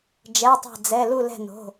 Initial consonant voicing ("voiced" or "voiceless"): voiced